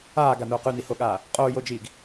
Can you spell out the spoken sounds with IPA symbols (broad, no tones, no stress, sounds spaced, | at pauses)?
aː ɡ a n oː q ʉ n i h o ɠ aː | qʼ oː j o d͡ʒ iː ɡ